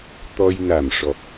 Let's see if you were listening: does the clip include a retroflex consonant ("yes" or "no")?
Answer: yes